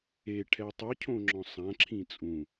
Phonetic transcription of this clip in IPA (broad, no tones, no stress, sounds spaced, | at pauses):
e ʈʰ ɛ tˤ ɨ cʰ õ ŋ͡ǁ ɔ̃ sˤ ã ǁʰ ĩ t͡sʼ ũ